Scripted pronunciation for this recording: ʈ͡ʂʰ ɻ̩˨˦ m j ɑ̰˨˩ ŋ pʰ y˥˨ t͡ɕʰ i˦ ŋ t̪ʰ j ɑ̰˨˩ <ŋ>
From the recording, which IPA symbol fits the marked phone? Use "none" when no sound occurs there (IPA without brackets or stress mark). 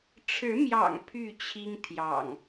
ŋ